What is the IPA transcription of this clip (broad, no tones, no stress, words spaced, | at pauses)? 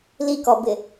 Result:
likɔbɪ